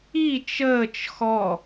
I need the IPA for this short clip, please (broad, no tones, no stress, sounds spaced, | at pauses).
i t͡ʃ əː t͡ʃ x ɔ